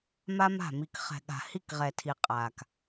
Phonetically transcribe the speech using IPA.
m a˦ m a̤˦˨ m i˨ k χ ɛ̤˨ ɠ a̤˨ h i˦˨ k ʁ ɛ˨ tʰ i˨ qʼ a˨ k

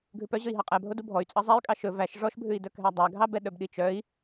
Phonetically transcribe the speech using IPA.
ɡʱ ʉ p œ ʑ ɵ i̯ ɦ ɑ qʼ æ bʱ o d u bʱ ɔ y̯ t͡sʼ ɑ zˤ æ y̯ kʼ ɑ ʃ ɵ v æ ʃ ʐ ɔ ʃ bʱ ʉ i̯ d œ k ɦ æ dˤ æ ɡʱ ɑ b ɛ ɗ œ b ɗ i t͡ʃ œ i̯

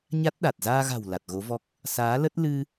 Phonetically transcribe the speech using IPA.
ɲ a˦˥ t̚ ɗ a˨˩ t̚ z aː˧ ɣ a̤˨˩ w l a˨˩ t̚ ɣ o˨˦ v ɔ˦˥ k̚ | s aː˨˦ l ə˦˥ t̚ l ɨ˧

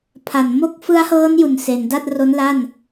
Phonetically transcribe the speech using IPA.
pʰ a˨˩ n m o˦˥ k̚ f ɯ˦˥ a̯ h ɤː˦˥ n j u˨˩ n s e˩˦ n d a˥˩ t̚ r o˦˥ n l a˥˩ n

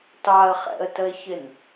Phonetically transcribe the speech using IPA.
t ɑ ə̯ χ ɛ̰ ə̯ t ə ɪ̯ ç ɪ n

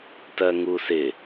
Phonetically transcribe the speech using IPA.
t ɜ ŋ u s ɪ

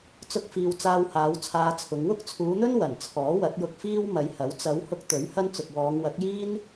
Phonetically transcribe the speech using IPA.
t͡s ʊ˥ k̚ f iː˧ w t͡s aː˧ w h aː˨˧ w t͡sʰ aː˧ t͡sʰ ʊ˨˧ ŋ w ʊ˥ k̚ t͡sʰ uː˨˧ n̪ ɵ˥ n w ɐ˨˩ n t͡sʰ ɔː˨˥ w ɐ˨˥ t̚ j ʊ˧ k̚ f iː˥ w m ɐ˨˧ j h ɐ˨˥ w t͡s ɐ˨˧ w h ʊ˧ k̚ t̪ ɵ˨˥ ɥ h ɐ˥ n t͡s ʊ˨ k̚ w ɔː˨˧ ŋ w ɐ˨˥ k̚ j iː˥ n

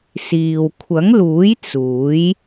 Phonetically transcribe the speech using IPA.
s iː˨ w kʷʰ ɐ˨˥ ŋ l uː˨˥ j t͡s uː˨˥ j

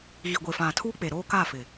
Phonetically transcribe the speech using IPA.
ɣ i˨ ɡʷ e˨ f ã˨ tʰ uː˦ k͡p e˨ ɾ oː˦ k a˦˨ f ɪ˨

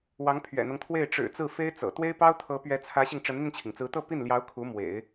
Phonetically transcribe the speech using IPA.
w ɑ˧˥ ŋ pʰ ɥ ɛ̰˨˩ n̪ ɤ˦ ŋ t̪ʰ w e˥˩ ɪ̯ ʈ͡ʂ ɻ̩˨˩ t͡s ɹ̩˥˩ f e˥ ɪ̯ t͡s ɤ̰˨˩ t̪ w e˥ ɪ̯ p ɑ˥ ʊ̯ t̪ʰ ɤ˧˥ p ɥ ɛ˧˥ t͡sʰ ä˧˥ ɕ i˧ ŋ ʈ͡ʂ ə˧˥ n n̪ i˧ n t͡ɕʰ i˩ ŋ t͡s ɹ̩˧˥ t̪ ɤ˥˧ p i˥˩ n l j ɑ˧˥ ʊ̯ kʰ u˧˥ m w ḛ˨˩˦ ɪ̯

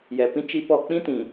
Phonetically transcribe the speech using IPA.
j ɛ˨ p ĩ˦ t͡ʃ i˦ p ɔ˦˨ k͡p ĩ˦ t ĩ˨

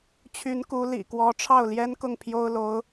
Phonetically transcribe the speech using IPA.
t͡ɕʰ y˧˥ n k u˧˥ l ḭ˨˩ k w ɔ˧˥ ʈ͡ʂʰ ɑ˥˩ ʊ̯ l j ɛ˥ n k ʊ˥˩ ŋ pʰ j o˥ ʊ̯ l o˧˥ ʊ̯

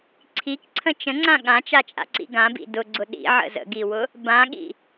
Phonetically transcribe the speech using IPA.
ǀʰ i k ǀʰ ə̃ t͡ʃ ə̃ ŋ͡ǀ ã ɠ ã t͡ʃ a t͡ʃʼ a̰ ǀ ḭ ɡ ã b ḭ d ʊ ɡ͡ǀ ʊ ɗ ḭ ʕ ə̰ z ə̰ ɡ i w ʊ | b ã ɠ ḭ

